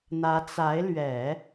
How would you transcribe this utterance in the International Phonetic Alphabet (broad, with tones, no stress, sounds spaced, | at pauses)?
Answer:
n̪ ä˧˥ t͡s a˧˥ ɪ̯ l ɥ ɛ˨˩˦